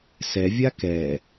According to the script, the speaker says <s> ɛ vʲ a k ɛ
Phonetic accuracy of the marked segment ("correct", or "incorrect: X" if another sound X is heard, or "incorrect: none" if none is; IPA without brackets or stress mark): correct